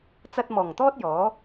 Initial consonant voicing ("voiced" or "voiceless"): voiceless